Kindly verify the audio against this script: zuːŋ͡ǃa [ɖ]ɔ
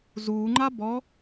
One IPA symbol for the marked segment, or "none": b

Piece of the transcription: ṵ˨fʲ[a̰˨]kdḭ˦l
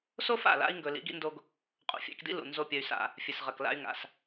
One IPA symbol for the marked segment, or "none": a̰˧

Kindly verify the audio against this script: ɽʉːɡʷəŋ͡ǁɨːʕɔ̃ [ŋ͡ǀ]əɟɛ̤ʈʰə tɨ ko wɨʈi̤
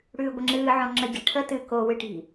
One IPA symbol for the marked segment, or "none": ŋ͡ǁ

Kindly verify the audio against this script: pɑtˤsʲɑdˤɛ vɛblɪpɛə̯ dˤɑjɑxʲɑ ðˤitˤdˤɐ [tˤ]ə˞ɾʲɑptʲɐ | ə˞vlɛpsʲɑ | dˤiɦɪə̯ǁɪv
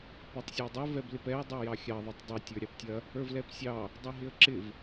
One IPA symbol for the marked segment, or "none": tʲ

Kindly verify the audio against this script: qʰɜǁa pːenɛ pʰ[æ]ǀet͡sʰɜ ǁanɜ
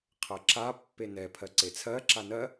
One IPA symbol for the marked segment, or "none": ɜ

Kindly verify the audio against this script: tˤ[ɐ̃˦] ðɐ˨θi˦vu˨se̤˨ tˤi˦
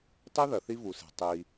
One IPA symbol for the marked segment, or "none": ɐ˦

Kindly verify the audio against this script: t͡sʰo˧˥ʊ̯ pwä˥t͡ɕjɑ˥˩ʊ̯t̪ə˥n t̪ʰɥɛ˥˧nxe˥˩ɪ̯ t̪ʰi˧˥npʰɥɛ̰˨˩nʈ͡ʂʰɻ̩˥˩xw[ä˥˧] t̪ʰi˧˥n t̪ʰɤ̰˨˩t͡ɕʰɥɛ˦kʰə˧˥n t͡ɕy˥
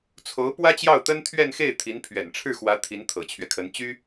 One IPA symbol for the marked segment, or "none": ä˧˥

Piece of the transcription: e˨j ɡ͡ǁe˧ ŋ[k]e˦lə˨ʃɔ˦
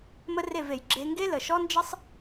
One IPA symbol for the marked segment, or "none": ɡ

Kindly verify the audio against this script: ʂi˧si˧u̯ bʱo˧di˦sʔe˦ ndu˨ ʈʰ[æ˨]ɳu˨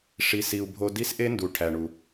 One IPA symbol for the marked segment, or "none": æ˨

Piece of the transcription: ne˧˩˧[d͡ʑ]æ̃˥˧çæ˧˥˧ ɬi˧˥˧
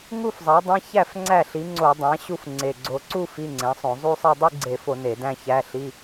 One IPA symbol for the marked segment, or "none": d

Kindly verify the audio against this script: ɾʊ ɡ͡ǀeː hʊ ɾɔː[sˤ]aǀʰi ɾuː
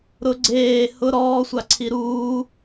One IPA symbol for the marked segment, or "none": sʷ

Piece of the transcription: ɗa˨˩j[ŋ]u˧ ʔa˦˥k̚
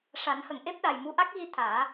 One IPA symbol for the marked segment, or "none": m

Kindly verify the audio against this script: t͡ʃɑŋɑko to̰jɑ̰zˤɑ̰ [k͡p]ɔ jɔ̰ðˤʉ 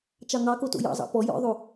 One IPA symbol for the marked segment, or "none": p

